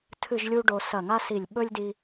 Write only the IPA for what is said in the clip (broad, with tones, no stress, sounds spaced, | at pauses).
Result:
tʰ ɨ˥˧ ʒ lʲ u˥ ɖ o˧ s ɐ˧˩ ŋ a˥ s i˧˩ lʲ ɓ ɵ˥ lʲ d i˧